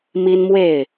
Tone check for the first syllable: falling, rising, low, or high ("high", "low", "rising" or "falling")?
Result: high